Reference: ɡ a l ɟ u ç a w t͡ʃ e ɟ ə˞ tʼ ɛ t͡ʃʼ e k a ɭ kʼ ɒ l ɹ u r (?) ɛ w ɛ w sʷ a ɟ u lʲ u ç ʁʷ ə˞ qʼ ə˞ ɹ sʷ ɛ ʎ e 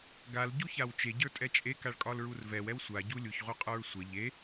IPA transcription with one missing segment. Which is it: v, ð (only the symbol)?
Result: v